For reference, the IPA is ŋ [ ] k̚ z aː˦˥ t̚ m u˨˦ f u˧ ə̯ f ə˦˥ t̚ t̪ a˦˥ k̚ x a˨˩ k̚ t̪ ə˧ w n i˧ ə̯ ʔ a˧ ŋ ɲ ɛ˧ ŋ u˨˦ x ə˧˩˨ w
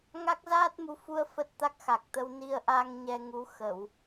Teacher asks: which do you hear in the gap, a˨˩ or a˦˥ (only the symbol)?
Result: a˦˥